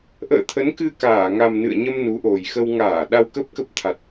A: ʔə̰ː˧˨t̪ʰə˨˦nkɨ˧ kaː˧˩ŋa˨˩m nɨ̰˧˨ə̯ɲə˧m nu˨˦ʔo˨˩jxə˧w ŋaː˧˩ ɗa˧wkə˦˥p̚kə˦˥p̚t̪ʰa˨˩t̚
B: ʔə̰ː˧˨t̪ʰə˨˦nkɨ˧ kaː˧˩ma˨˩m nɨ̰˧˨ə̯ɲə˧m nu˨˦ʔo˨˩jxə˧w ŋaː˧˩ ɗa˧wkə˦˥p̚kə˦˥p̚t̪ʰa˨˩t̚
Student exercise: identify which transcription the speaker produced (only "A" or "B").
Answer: A